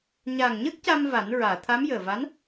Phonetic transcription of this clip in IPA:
ɲ aː˨˩ ŋ ɲ əː˦˥ k̚ c a˧ m v a˨˩˦ n ɹ aː˨˩˨ t̪ʰ a˧˥ m j əː˨˩ v a˧˥ n

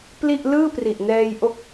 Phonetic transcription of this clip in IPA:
p l i˥˩ ʔ l ɯː˥˩ p r i˨˩ ʔ n ɛː˧ j ʔ o˦˥ k̚

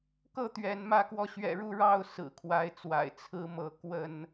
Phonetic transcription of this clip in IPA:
k ɤ˥˨ t̪ ɥ ɛ˨˦ n m ä˥˨ k w ɔ˥˨ ɕ ɥ ɛ̰˨˩ ɻ u˥˨ ɻ ɑ˥˨ ʊ̯ s ɹ̩˨˩ kʰ w a˨˦ ɪ̯ t͡s w a̰˨˩ ɪ̯ t͡sʰ ɹ̩˦ m ɤ˨˦ k w ə˥˨ n

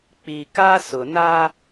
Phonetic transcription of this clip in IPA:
k͡p i˨ k a˦ s ʊ˨ n a˦

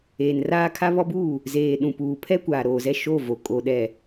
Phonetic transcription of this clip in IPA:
eː˨ n r aː˦ kʰ a˦ β ɔ˦ b uː˦˨ | z eː˨ ɗ ũ˨ p uː˨ pʰ ɛ˦ kʷ aː˨ ɾ oː˨ z ɛ˦˨ ʃ o˦˨ v o˨ kʼ o˨ ɗ ɛ˨

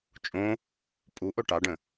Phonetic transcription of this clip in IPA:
t͡ʃʼ õ | pʼ u ʔ o ʈ ɑ ɖ ə̃

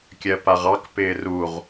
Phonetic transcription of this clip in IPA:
kʲ ɜ p a ʁ ɑ k p ɪː r u ʁ

